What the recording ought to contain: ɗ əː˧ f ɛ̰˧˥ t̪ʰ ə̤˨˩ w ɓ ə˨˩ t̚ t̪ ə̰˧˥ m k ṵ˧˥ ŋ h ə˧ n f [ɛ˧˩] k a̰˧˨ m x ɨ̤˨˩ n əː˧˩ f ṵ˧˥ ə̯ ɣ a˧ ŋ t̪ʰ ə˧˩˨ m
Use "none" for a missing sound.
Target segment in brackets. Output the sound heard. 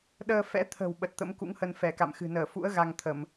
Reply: ɛ˧˩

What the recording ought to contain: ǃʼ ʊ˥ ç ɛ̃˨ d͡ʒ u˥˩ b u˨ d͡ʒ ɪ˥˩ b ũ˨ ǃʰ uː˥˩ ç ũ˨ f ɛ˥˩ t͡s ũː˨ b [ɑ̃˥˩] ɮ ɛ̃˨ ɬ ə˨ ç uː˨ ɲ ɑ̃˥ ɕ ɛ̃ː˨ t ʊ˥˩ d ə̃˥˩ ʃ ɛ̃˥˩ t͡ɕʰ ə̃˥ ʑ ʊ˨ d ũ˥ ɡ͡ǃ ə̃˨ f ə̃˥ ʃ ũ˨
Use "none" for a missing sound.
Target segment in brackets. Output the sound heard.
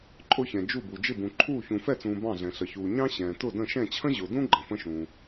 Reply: ɑ̃˥˩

